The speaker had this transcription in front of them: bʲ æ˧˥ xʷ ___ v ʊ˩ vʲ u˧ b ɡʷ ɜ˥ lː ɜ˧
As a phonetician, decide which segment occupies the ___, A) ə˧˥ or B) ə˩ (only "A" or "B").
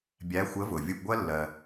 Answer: A